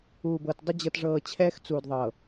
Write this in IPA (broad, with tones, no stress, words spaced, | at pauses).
uː˨bɤ˨t dˤə˦ d͡ʑɤ˨tʐɤː˨ t͡ɕʰɛː˦xt͡suː˨dðˤɤ˨